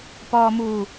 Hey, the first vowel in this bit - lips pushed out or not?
yes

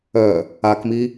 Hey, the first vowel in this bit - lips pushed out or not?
yes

